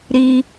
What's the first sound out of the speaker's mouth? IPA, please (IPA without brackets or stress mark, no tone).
ɾ